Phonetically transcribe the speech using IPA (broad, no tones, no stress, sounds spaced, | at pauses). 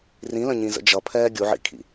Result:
r ĩ l ə̃ ɲ ĩ z ə̰ d͡ʒ ʌ pʰ ɛː ɡʲ u ʕ ḭ kʰ ḭ